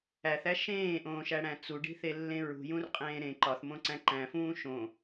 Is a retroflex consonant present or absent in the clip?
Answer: present